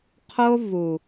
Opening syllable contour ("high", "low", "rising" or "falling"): high